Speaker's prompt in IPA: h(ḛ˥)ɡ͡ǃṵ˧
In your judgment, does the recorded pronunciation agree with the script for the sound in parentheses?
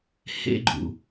yes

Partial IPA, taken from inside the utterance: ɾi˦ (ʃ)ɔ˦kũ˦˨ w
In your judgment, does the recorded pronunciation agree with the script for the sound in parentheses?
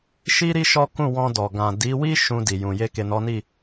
yes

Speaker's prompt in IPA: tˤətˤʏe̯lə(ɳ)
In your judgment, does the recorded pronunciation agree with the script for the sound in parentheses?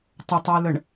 yes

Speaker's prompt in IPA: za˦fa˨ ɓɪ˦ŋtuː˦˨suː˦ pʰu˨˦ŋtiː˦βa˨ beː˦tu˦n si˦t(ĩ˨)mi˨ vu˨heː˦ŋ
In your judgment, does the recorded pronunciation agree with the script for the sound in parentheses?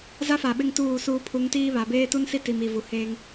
no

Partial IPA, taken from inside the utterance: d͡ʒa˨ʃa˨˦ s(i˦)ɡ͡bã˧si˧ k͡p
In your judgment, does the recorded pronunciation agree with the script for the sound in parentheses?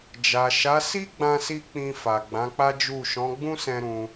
yes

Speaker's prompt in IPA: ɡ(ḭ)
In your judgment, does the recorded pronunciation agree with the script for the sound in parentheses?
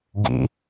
yes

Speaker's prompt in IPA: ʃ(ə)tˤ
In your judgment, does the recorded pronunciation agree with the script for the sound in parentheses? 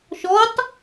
no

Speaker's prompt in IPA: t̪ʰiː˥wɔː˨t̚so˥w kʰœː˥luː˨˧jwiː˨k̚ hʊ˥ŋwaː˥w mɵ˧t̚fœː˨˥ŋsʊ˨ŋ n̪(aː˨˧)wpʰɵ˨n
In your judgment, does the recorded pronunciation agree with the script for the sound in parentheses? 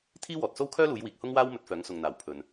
no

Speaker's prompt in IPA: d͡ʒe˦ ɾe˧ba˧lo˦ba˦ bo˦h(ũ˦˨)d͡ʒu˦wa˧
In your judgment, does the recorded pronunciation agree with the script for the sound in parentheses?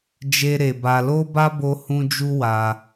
no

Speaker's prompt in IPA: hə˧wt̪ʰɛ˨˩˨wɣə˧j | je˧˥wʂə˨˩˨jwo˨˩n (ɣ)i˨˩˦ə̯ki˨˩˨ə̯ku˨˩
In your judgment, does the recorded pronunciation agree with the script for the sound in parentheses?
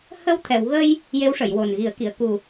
yes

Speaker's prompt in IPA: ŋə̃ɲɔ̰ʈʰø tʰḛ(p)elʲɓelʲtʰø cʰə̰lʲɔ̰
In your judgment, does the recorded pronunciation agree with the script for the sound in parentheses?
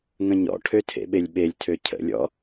no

